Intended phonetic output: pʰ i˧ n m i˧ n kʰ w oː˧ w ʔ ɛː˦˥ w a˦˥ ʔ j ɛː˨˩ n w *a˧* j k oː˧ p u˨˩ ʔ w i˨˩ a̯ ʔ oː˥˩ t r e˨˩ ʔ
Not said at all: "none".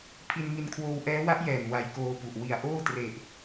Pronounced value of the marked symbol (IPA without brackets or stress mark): a˧